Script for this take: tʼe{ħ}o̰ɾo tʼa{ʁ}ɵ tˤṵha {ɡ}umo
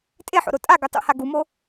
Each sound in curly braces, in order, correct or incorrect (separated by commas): correct, incorrect, correct